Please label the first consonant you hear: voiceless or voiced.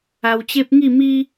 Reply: voiced